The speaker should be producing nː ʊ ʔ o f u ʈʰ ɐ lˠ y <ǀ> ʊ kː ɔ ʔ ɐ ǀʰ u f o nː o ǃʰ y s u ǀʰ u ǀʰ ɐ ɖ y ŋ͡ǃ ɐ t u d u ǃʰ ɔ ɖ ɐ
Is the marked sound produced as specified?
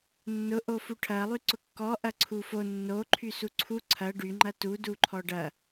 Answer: yes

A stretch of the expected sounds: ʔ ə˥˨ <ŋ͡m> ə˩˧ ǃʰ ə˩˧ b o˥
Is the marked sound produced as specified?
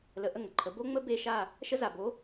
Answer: no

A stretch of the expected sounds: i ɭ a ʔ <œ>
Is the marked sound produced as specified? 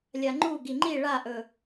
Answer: no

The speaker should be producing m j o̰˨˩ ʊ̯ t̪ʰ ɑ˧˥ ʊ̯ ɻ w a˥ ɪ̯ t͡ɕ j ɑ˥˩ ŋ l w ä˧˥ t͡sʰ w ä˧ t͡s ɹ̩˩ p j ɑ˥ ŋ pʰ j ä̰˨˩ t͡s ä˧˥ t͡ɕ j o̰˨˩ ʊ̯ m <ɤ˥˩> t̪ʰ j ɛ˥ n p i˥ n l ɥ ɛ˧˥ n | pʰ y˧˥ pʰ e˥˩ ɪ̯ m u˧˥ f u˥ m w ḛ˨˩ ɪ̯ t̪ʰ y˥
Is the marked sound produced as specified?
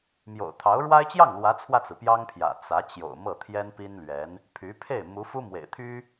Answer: yes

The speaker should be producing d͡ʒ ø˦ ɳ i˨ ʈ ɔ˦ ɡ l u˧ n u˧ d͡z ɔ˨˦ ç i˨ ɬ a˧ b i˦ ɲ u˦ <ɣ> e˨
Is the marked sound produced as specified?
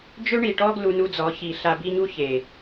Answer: no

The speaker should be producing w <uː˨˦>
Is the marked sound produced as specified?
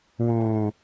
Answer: no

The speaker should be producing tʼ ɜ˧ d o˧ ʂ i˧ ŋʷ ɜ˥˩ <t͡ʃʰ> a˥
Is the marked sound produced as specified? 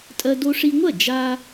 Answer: no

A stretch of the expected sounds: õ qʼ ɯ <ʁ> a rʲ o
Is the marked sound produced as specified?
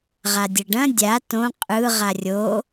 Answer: yes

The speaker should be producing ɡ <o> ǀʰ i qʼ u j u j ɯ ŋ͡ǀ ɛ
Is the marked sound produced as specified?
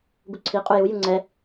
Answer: no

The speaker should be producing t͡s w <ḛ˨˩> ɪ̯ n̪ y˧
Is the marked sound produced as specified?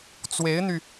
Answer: no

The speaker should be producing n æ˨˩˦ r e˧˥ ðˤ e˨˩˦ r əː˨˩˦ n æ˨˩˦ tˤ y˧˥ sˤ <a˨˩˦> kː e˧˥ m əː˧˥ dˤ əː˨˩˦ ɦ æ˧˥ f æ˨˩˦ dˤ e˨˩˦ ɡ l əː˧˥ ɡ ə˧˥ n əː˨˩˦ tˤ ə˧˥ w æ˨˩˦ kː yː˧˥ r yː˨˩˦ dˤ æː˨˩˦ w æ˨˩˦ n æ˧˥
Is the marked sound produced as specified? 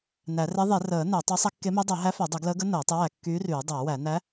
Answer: no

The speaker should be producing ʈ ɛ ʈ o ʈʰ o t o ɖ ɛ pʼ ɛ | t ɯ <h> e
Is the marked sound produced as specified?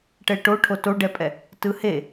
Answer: yes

